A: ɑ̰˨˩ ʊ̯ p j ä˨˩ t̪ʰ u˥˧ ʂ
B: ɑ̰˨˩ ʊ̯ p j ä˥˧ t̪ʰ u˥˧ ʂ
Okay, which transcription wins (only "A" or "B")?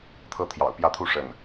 B